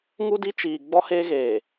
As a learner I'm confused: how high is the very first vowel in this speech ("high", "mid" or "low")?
high